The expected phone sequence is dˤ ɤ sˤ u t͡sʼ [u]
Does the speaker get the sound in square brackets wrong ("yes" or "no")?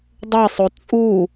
no